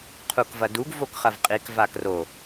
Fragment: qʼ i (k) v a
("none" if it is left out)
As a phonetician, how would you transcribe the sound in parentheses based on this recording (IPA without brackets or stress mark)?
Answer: k